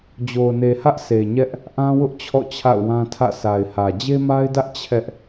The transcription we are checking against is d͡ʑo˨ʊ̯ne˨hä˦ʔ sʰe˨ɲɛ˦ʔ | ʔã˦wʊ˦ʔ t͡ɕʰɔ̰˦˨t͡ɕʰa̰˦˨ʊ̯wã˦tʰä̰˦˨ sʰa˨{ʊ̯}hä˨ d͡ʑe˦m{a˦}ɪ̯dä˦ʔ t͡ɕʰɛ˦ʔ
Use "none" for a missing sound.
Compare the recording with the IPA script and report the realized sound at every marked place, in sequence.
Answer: ɪ̯, a˦

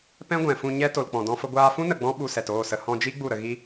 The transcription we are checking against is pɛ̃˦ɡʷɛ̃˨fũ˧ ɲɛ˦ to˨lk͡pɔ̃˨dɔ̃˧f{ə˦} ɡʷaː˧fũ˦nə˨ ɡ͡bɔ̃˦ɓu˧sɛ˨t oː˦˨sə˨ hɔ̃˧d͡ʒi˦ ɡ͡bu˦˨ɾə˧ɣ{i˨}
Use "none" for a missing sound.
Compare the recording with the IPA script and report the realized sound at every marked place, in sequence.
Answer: ə˧, i˦

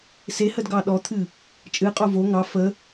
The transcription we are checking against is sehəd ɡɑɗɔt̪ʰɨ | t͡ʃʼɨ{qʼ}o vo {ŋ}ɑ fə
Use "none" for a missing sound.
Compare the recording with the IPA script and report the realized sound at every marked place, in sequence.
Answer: qʼ, ŋ

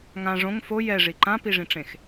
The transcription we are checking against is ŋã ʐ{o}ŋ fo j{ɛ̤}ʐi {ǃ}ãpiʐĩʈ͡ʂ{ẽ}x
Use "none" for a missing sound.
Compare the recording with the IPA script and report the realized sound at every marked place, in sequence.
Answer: õ, ɛ, ǃ, ẽ

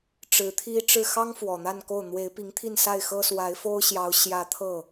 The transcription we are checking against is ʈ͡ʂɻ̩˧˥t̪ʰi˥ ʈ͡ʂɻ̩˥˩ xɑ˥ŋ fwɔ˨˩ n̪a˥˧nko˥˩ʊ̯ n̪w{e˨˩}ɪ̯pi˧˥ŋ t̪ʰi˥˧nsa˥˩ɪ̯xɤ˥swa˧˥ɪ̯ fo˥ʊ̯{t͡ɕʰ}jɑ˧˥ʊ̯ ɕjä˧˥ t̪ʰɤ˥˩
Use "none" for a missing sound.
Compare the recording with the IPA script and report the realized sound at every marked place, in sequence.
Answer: e˧˥, ɕ

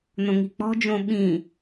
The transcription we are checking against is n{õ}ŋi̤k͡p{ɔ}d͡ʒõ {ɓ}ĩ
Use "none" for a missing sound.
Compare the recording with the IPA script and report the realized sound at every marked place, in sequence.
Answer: õ, ɔ̤, ɓ

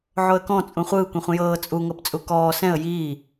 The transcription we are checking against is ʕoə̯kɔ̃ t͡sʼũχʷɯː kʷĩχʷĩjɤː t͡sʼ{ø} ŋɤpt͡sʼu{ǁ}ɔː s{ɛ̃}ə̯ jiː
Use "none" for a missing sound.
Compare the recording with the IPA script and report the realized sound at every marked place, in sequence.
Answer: u, k, ɛ̃

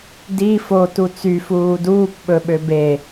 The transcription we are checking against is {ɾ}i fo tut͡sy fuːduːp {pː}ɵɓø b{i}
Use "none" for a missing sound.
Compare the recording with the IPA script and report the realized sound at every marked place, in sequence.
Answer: d, ɓ, e

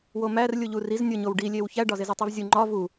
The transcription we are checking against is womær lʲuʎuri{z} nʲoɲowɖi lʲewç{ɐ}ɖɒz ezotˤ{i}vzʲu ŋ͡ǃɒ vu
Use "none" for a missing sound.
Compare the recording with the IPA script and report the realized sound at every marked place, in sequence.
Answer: z, æ, i

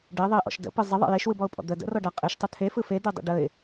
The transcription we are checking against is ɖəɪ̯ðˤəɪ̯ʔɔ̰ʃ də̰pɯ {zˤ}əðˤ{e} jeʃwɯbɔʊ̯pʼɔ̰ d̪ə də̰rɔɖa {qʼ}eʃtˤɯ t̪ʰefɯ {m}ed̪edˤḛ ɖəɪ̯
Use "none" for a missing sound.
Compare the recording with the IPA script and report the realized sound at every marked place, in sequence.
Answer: zˤ, ḛ, qʼ, f

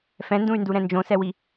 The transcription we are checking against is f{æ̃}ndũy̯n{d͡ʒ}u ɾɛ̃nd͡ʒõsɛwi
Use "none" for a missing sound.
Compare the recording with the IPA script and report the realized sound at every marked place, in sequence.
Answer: ɛ̃, d

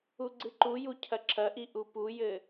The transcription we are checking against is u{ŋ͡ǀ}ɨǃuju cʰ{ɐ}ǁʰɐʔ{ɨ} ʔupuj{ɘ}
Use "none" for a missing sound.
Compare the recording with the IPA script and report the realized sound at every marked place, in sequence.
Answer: ɡ͡ǀ, ɐ, i, ɘ

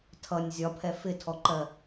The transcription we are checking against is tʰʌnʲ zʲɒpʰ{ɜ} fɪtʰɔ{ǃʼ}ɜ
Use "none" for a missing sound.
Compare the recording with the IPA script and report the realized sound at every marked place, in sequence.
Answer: ɛ, ǃ

